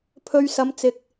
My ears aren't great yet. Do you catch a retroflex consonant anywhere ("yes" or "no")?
no